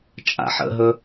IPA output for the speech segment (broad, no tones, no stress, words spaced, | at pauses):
t͡ʃʼa̰ħə̰ɦɵ